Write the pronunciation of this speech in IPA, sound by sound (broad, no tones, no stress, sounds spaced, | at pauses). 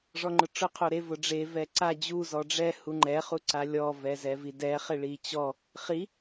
ʐ ɔ ŋ͡ǃ ʊ ʈ͡ʂ ʊ qʰ o ɾ e v ʊ ɖ͡ʐ e v ɛ ǀ a d͡ʑ u z ɔ ɖ͡ʐ ɛ h u ŋ͡ǃ ɛ χ u ǀ a lʲ ɔ v ɛ z ɛ v i d ɛ χ ɪ ɭ i t͡ɕ ɔ | χ i